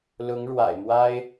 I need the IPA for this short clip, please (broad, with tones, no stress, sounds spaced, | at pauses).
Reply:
l ʊ˧˥ ŋ ɻ w a̰˨˩ ɪ̯ m w a˥ ɪ̯